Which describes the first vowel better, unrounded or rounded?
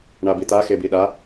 unrounded